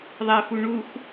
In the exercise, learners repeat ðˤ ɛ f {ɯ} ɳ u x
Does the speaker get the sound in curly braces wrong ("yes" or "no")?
yes